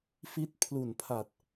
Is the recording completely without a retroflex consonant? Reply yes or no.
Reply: yes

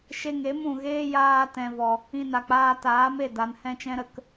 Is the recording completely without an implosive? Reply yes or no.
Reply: yes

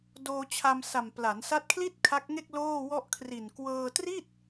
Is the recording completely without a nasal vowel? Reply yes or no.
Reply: yes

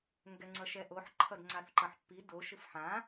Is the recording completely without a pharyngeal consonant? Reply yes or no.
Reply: no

